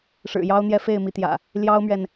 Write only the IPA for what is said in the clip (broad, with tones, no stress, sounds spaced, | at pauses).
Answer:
ʂ ɻ̩˨˩ j ɑ˦ ʊ̯ n̪ j ɛ˦ f e˥˨ ɪ̯ m i˨˦ t̪ j ä̰˨˩ | l j ɑ˦ ʊ̯ m ɥ ɛ˨ n